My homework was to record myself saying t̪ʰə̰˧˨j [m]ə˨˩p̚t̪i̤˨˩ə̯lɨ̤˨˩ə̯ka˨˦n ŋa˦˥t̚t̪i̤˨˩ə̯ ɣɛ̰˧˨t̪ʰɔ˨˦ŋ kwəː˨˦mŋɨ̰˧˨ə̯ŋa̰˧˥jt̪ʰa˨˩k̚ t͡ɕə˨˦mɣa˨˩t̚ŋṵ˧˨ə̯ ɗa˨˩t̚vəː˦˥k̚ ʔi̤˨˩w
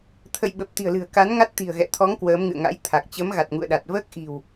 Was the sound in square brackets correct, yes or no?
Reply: no